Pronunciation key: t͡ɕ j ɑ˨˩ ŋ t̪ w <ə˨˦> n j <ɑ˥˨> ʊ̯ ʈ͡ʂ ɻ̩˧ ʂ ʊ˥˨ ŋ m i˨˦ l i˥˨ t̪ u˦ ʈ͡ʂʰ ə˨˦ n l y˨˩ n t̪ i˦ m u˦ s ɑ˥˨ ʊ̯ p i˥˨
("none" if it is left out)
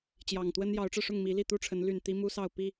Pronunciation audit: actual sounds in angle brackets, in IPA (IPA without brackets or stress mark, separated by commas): ə˦, ɑ˨˦